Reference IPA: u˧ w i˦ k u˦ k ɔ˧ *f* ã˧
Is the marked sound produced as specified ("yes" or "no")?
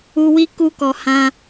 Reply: no